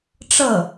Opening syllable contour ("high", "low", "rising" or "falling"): falling